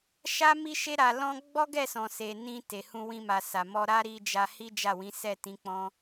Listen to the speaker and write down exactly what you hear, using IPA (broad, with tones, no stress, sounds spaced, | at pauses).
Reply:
ʃ a˦ m i˦ ʃ e˦ ɾ a˧ l ɔ̃˦ ɡ͡b ɔ˦ ɡ ɛ˦˨ s ɔ̃˨ s e˨ n ĩ˧ t e˨ h ũ˧ w ĩ˧ m a˨ s a˨ m ɔ˧ ɾ a˦ ɾ i˦ d͡ʒ a˦ h i˦ d͡ʒ a˦˨ w ĩ˨˦ s ɛ˦˨ t ĩ˨˦ k͡p ɔ̃˦